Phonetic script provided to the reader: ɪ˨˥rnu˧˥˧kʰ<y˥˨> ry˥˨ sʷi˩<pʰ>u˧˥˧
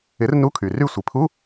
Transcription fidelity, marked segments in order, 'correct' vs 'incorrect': incorrect: y˩, correct

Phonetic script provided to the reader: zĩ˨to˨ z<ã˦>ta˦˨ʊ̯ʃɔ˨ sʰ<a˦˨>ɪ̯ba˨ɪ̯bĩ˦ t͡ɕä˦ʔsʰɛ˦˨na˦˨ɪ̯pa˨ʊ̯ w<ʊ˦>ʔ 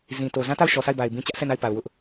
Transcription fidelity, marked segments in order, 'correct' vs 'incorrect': correct, correct, correct

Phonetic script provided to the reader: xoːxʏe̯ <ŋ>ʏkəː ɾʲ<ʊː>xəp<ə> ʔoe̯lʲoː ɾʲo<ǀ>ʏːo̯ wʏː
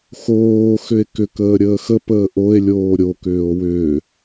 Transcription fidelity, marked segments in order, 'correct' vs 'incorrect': incorrect: k, incorrect: əː, incorrect: əː, incorrect: k

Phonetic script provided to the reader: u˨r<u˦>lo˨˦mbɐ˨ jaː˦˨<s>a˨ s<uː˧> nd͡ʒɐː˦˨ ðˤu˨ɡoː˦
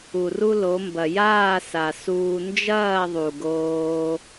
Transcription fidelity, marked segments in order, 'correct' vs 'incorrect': correct, correct, correct

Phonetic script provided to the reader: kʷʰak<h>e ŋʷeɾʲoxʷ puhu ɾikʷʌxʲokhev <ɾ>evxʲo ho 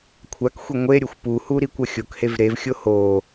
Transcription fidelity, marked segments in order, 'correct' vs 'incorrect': incorrect: xʷ, correct

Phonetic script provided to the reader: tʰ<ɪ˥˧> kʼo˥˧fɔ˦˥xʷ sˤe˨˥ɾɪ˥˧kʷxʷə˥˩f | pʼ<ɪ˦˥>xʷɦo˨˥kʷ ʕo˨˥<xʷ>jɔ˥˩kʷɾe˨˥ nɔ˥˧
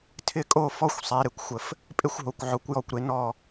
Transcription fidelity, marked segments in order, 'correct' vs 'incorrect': correct, correct, incorrect: kʷ

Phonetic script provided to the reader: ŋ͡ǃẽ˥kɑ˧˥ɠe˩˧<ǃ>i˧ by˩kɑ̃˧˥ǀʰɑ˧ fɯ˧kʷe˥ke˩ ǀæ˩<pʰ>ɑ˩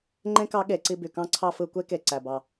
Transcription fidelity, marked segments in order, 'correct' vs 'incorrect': incorrect: ǀ, incorrect: b

